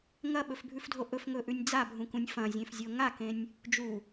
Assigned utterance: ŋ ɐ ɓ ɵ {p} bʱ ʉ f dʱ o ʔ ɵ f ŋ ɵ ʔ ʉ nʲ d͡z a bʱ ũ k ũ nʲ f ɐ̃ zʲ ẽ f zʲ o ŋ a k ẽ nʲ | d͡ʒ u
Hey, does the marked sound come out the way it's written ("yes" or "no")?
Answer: no